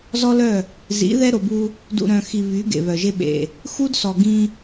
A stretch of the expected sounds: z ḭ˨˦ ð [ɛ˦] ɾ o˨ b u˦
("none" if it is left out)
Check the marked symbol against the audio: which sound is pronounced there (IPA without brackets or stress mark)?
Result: ɛ˦